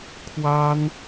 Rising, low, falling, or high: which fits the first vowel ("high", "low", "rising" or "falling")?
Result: high